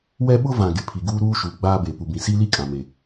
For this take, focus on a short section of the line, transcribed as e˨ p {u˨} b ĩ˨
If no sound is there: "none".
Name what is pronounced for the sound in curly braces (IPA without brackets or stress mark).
u˨